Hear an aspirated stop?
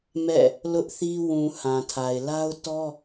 yes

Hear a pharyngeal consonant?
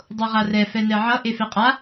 yes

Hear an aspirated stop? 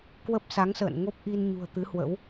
no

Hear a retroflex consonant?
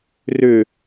no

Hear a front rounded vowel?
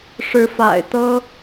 no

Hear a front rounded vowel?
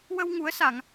no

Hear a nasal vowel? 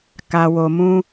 yes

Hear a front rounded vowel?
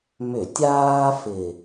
yes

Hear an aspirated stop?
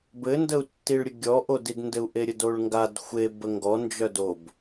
no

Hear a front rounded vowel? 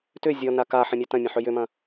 yes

